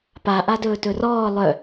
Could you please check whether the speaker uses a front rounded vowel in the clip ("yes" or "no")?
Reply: yes